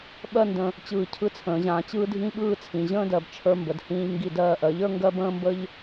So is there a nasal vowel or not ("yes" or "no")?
yes